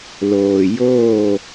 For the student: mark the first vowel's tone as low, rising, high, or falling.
low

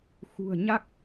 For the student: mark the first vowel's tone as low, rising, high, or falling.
low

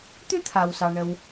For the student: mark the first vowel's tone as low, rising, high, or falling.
high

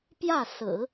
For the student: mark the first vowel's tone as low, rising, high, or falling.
falling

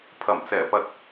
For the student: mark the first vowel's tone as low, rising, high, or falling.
low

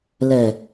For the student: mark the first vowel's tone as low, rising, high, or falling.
low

